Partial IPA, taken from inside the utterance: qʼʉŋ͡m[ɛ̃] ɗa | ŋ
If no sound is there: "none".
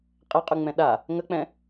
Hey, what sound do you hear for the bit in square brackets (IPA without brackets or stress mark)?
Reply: ɛ̃